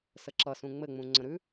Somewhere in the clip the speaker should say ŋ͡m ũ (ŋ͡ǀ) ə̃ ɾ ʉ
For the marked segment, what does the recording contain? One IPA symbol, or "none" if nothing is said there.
ŋ͡ǀ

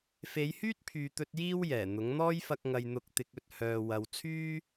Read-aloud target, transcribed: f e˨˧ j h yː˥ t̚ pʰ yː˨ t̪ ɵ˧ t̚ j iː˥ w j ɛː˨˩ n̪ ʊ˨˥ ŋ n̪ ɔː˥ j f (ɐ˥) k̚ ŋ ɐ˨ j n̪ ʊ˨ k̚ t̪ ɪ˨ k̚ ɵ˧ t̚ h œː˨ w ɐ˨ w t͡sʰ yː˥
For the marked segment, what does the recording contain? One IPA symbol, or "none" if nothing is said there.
ɐ˧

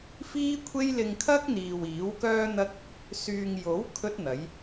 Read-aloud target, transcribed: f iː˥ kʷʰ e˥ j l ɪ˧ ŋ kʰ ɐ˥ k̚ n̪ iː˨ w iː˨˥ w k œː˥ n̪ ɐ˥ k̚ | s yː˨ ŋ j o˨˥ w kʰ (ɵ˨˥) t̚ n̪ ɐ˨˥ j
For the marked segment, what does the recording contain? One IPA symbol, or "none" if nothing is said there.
ɵ˥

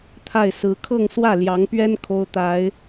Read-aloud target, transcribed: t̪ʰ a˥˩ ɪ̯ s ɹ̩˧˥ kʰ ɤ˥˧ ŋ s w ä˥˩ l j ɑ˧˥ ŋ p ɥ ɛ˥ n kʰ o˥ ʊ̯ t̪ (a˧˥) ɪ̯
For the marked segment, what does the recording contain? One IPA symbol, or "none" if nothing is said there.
a˨˩˦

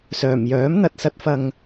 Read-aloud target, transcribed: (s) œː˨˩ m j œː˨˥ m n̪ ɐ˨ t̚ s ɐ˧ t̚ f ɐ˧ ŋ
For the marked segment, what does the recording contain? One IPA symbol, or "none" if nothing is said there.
s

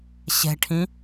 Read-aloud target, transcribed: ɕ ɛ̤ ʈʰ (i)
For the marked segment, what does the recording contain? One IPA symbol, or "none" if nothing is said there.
ĩ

